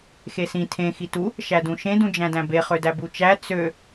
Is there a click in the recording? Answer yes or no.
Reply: no